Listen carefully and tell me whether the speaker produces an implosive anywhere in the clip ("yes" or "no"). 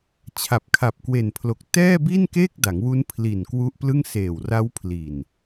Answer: no